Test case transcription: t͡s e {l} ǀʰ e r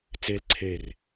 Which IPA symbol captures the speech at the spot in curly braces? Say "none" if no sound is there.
l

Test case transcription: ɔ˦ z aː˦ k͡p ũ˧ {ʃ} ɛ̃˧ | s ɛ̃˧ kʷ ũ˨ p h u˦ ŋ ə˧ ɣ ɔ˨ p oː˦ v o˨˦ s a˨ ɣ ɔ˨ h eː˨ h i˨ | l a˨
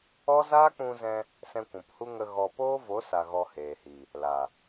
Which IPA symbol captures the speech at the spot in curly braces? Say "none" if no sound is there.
z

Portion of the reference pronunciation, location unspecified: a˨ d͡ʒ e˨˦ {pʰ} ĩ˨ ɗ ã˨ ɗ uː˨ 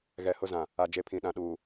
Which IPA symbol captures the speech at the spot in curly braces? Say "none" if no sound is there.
pʰ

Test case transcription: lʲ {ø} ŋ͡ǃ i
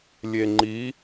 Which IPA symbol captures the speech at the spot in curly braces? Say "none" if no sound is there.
e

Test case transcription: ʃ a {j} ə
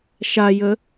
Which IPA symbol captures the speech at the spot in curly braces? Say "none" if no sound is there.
j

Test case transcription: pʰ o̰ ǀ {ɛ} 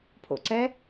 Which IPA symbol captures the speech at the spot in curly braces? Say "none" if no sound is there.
ɛ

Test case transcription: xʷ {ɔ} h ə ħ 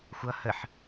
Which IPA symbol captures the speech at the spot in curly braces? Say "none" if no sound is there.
ʌ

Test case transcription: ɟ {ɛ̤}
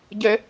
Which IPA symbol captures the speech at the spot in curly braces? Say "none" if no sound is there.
ɛ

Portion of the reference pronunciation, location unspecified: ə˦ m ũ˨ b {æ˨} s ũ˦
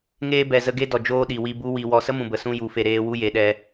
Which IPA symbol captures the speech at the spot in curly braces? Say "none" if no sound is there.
ə˨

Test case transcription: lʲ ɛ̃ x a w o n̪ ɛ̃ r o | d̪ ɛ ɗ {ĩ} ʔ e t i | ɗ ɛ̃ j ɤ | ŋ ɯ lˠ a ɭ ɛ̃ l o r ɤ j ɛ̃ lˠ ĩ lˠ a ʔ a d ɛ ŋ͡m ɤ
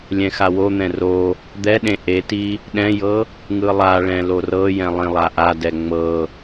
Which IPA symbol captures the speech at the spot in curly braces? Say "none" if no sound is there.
ẽ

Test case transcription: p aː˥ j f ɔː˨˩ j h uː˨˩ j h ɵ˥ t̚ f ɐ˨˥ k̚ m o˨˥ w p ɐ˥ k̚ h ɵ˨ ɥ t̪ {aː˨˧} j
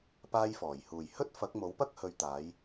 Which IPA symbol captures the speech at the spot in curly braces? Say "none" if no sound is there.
aː˨˧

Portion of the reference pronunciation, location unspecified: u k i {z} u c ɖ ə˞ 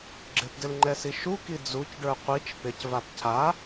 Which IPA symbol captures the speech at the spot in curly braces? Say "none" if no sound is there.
d͡z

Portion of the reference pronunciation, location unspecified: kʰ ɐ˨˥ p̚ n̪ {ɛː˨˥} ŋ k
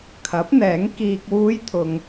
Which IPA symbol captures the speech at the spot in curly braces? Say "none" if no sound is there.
ɛː˨˥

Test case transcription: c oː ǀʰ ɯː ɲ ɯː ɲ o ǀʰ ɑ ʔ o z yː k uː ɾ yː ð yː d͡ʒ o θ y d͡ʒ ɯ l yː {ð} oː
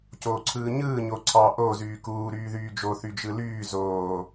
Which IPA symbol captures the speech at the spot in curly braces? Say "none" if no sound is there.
z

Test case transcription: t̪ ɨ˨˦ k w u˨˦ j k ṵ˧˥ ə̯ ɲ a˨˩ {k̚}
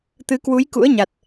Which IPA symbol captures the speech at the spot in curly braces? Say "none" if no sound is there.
t̚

